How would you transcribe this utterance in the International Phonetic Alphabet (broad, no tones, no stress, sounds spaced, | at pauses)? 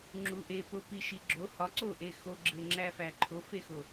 ŋ͡ǁ u ʔ e p o p i ʃ i ɡ͡ǁ o h ɒ ǀ o ʔ e x o ɡ͡ǁ e ŋ͡ǁ æ f æ ǃʰ o f e x o